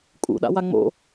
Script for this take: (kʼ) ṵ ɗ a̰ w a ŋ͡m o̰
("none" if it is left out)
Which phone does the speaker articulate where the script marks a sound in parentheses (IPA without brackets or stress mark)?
kʼ